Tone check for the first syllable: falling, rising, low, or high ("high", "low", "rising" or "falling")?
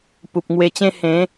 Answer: low